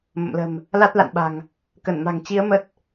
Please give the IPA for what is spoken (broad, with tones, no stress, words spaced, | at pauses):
mə̰˧˨mlə̤˨˩m | la˦˥t̚la̰˧˨nɓa̤˨˩ŋ | kə˧˩nma̤˨˩ŋt͡ɕi˨˦ə̯ mə˦˥t̚